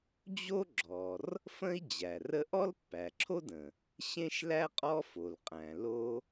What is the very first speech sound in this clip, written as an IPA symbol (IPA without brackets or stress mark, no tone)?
d͡ʑ